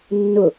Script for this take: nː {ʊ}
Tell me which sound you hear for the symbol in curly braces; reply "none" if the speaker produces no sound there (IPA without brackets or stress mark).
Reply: ʊ